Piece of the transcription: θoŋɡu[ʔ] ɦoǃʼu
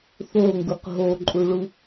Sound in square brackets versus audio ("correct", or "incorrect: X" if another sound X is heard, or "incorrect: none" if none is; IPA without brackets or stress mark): incorrect: q